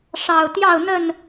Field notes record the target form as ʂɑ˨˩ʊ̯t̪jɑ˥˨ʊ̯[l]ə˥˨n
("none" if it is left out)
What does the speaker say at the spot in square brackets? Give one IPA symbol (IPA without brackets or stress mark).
n̪